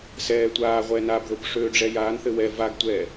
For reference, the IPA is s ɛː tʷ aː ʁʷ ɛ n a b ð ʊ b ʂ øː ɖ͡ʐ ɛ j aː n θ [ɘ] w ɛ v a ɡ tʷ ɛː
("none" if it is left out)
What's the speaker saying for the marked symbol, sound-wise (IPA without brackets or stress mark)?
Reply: ɘ